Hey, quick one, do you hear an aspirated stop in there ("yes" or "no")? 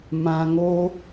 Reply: no